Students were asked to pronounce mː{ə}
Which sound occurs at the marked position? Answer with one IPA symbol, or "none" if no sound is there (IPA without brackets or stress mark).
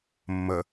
ə